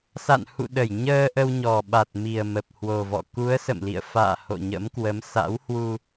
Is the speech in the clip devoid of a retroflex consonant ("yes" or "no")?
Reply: yes